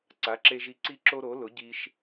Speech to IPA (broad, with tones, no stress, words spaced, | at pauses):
ǀa˩˥ǁe˧ʒi˧ ǀi˥ ǁo˥ ɾo˩˥lʊ˩˥ɟi˧ʃ